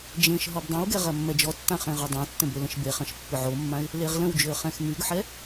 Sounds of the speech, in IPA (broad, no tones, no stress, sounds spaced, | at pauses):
d͡ʒ ẽ ʃ ɦ ɔ b dˤ ɐ̃ w ɡ ɛ ʁ ɐ mː ɛ d͡ʒ ɔ tː ã χ ẽ ʁ ɔ dˤ ã tː ə̃ b ø l ə̃ ʃ b e χ ɐ̃ ʃ pː ʏ ʕ o mː ã ɪ̯ | l e ʁ l ə̃ w d͡ʒ ʏ ə̯ χ ɛ̃ x m y ɡ ħ ɛ